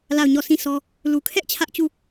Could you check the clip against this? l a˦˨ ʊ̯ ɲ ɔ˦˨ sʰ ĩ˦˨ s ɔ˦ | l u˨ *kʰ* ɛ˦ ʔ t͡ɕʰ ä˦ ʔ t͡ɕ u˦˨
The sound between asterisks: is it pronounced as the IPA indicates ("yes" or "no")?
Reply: yes